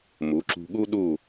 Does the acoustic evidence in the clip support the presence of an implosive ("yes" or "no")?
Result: yes